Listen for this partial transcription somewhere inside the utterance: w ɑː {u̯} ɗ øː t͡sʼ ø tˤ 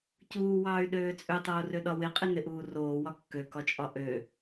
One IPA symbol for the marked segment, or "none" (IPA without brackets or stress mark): y̯